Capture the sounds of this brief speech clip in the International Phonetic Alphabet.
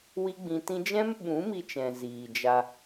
wi˦ɡ͡bĩ˧tĩ˦ d͡ʒɛ̃˦mɓũ˨˦mi˧t͡ʃɛ̃˨ ziː˨d͡ʒa˧

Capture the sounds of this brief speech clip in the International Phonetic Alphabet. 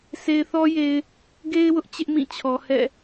sʰe˨ɪ̯θɔ˦je˨ɪ̯ | ɡe˦ɪ̯wʊ˦ʔ t͡ɕɪ˦ʔmĩ˦˨t͡ɕʰɔ˨ hɛ̰˦˨

